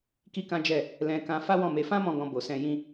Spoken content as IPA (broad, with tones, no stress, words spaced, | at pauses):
ki˦kã˦d͡ʒɛ˦˨ | lɛ̃˧kã˧ fa˦wɔ̃˦˨me˧ fã˦mɔ̃˧ ɡɔ̃˧ bo˨sɛ̃˧ jĩ˧